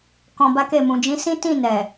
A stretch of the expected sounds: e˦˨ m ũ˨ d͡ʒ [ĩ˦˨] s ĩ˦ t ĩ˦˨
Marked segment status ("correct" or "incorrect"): incorrect